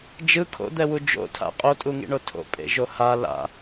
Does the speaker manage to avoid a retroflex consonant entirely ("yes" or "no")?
no